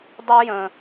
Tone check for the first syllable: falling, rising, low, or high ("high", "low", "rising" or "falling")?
high